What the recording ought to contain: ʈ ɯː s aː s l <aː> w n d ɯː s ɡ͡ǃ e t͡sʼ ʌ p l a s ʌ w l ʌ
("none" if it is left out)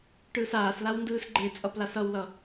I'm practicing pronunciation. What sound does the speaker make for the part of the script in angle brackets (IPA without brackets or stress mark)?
a